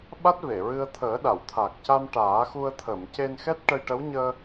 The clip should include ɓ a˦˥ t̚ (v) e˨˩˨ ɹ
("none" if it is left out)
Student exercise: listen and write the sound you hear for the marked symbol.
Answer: v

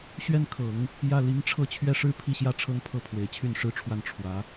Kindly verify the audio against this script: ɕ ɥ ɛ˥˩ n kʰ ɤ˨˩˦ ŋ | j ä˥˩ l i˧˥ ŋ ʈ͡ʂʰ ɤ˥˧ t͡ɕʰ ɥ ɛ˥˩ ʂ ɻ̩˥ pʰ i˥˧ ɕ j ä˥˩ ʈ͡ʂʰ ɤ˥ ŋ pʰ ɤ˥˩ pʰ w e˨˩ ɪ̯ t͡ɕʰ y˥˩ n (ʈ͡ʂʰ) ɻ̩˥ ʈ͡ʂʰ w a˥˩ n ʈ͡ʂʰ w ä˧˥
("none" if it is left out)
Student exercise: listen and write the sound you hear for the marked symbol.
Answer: ʂ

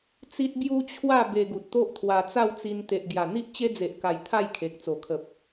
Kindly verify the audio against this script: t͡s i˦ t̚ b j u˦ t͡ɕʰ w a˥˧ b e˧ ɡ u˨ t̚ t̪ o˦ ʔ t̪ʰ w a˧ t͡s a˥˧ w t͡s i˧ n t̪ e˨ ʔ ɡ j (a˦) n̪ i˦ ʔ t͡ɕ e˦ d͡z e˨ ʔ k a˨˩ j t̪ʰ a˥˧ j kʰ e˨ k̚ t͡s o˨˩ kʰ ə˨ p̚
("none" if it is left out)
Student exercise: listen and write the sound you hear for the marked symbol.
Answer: a˨˩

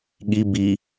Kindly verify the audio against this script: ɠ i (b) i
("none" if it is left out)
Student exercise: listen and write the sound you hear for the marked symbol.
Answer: b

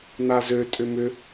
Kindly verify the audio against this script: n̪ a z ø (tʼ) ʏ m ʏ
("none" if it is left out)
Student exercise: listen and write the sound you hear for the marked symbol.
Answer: tʼ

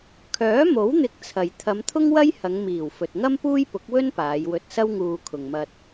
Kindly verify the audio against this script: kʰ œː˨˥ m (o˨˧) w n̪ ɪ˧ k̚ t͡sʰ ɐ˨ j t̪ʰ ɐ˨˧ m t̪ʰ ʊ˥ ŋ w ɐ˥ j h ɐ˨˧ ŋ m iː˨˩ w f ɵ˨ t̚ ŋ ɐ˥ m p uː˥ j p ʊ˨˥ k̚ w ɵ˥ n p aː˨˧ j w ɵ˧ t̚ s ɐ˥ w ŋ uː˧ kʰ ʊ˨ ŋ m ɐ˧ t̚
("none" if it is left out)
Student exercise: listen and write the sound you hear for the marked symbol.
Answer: o˨˥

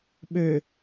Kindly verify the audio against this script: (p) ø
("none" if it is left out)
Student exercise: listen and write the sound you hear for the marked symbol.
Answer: ɓ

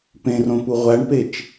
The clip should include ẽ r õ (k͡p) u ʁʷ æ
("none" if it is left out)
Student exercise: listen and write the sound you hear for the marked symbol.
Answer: p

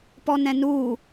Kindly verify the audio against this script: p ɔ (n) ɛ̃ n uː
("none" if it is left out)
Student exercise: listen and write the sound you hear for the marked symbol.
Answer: n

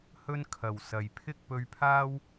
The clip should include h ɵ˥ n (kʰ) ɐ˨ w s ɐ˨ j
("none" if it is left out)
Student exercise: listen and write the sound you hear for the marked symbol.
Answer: kʰ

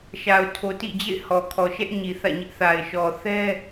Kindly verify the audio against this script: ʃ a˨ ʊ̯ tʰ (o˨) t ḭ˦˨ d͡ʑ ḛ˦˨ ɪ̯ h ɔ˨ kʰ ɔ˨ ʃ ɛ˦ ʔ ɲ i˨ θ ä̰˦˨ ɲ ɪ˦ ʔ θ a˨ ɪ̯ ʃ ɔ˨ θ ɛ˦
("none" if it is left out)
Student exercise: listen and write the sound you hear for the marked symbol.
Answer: o˨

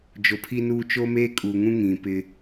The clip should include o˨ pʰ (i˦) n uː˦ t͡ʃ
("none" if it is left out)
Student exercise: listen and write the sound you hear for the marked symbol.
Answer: i˦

